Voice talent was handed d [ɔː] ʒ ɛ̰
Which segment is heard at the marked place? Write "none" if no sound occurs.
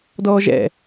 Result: ɔː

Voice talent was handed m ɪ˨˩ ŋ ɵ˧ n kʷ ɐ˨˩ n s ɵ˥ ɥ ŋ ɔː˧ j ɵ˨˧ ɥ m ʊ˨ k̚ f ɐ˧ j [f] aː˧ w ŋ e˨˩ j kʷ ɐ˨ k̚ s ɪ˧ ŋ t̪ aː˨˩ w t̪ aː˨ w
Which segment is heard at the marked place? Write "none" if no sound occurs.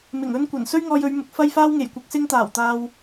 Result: f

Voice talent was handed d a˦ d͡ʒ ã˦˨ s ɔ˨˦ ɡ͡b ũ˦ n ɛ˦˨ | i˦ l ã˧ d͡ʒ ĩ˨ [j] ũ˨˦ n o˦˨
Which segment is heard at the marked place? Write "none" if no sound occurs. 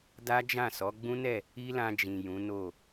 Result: j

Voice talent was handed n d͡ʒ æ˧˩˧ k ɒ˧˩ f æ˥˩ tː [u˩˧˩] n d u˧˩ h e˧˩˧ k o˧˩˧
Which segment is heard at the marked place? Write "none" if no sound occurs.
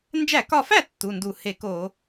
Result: u˩˧˩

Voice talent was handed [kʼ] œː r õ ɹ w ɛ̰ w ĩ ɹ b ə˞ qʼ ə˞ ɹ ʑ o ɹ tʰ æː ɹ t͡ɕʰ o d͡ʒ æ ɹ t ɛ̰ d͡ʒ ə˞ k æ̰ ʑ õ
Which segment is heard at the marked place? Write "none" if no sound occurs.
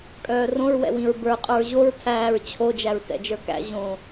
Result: kʼ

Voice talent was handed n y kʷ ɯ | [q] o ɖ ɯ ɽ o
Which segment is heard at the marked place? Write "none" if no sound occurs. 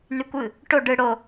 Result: ʈ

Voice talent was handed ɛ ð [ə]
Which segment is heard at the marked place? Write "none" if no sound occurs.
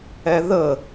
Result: ə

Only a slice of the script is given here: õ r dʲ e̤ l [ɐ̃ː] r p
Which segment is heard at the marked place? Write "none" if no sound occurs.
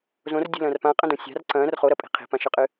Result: ɐ̃ː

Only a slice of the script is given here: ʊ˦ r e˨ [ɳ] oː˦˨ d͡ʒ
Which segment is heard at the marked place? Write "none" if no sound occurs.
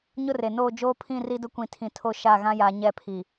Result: n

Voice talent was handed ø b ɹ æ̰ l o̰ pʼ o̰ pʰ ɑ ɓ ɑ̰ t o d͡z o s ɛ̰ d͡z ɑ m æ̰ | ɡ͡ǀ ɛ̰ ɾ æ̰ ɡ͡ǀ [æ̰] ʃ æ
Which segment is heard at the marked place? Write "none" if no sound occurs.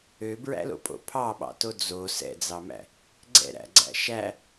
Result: æ̰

